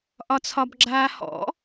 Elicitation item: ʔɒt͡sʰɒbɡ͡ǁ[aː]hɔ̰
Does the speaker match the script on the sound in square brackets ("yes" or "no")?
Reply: yes